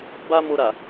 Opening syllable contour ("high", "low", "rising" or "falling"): high